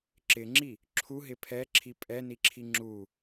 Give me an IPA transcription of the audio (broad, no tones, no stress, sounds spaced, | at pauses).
ǁ ɪ ŋ͡ǁ i | ǁʰ u ɦ ɪ pʰ ɛ ǁʰ i pʼ ɛ n i ǁʰ i ŋ͡ǁ u